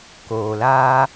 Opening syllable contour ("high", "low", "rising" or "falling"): low